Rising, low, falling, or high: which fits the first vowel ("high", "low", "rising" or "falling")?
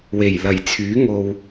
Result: low